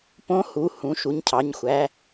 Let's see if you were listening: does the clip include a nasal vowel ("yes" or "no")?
yes